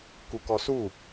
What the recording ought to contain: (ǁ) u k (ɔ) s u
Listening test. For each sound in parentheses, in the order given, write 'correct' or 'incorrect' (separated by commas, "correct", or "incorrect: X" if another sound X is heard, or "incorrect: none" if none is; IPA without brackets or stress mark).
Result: incorrect: k, correct